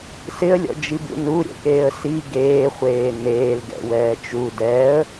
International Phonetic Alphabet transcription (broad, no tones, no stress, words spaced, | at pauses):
sɪə̯lʲɔ̰d͡ʒibṵ nuɾʲɛ̰keːə̯ si ɡeːχʷeː neːlɡɛ̰wɛː t͡ʃu dɛə̯